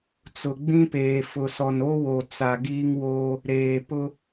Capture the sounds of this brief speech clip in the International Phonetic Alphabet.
t͡s ʊ˨ ɡ͡b ĩ˦ p eː˨ f ʊ˨ s ɔ˨ n o˦ w o˨ t͡s a˨ ɡ iː˦ ŋ w oː˦ | ɾ eː˨ p ʊ˦

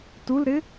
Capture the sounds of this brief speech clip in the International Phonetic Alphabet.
t u l ɾ ɪ

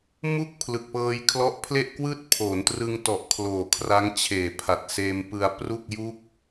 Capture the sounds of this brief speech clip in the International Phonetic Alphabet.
m u˥˩ k̚ pʰ l ɯ˨˩ k̚ p ɤː˧ j kʰ l ɔ˦˥ ʔ pʰ l e˥˩ ʔ k w ɯː˥˩ t̚ pʰ oː˩˦ n t r ɯ˧ ŋ t ɔ˨˩ ʔ kʰ l oː˨˩ kʰ r a˦˥ ŋ t͡ɕʰ eː˨˩ pʰ a˨˩ t̚ s eː˧ m p ɯ˧ a̯ p r u˥˩ k̚ j u˥˩ k̚

